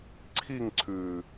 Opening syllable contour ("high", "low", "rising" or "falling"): falling